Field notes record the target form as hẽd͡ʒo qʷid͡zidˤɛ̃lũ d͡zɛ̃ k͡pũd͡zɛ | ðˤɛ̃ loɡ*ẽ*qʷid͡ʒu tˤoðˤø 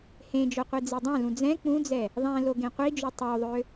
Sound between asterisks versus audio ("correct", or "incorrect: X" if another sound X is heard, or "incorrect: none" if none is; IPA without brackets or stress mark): correct